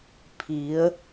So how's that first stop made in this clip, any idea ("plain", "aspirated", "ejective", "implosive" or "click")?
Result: aspirated